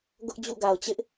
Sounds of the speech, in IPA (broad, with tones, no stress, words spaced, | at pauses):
ɡʊ˦ʔd͡ʑṵ˦˨ɡa˨ʊ̯t͡ɕɪ˦ʔ